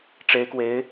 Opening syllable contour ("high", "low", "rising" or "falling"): rising